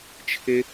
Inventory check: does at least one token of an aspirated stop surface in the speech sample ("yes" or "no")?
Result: yes